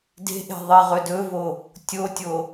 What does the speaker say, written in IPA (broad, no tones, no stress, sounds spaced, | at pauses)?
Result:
d e̤ ʔ e̤ ðˤ e ʁ ɵ d ɵ v o | tʲ o tʲ o